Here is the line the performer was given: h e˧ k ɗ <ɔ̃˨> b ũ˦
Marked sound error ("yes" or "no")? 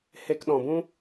no